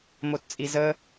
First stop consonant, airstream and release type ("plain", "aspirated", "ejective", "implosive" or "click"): plain